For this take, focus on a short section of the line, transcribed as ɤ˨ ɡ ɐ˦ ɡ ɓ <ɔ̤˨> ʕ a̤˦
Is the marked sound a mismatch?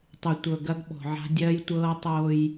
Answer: no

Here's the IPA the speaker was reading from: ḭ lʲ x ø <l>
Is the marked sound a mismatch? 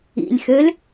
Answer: no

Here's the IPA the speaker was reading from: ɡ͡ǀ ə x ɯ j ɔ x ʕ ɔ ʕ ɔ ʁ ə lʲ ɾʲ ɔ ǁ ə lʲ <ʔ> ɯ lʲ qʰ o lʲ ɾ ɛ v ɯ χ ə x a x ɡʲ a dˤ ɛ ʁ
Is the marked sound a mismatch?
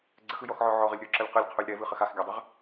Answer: yes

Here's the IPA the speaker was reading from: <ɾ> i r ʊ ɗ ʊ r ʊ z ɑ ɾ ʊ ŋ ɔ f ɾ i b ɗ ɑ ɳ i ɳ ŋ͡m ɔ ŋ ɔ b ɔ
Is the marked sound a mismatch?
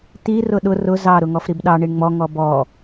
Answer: yes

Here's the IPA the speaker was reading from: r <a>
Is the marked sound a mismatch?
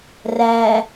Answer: yes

